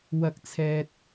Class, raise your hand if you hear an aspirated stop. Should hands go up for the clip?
yes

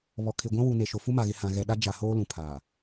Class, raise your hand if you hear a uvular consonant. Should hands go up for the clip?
no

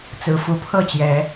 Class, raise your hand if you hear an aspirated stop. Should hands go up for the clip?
yes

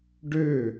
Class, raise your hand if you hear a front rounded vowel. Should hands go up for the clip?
yes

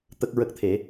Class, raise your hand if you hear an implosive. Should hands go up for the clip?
no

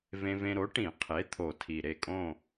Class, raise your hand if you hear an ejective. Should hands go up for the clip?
yes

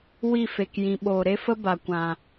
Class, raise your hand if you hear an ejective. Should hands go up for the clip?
no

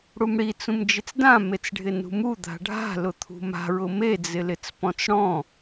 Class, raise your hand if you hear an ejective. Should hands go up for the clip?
no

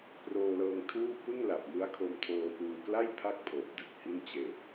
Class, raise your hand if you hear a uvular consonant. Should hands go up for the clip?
no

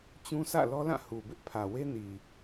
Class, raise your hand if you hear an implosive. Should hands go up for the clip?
no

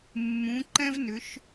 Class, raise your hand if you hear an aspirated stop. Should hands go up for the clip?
no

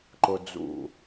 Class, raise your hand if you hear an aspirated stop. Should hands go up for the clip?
no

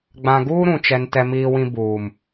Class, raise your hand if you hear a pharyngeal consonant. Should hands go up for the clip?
no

